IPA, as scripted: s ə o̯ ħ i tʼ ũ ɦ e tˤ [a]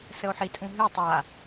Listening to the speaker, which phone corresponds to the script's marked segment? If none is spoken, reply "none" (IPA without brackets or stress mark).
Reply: a